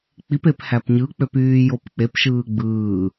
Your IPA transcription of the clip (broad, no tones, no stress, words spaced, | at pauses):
k͡pipep hæpɲɯk͡pøp yːjopk͡pepʃɯː ɡ͡bɯː